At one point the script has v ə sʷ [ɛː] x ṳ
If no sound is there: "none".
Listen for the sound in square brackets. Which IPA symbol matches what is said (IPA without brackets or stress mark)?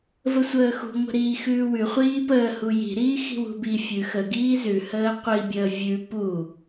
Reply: əː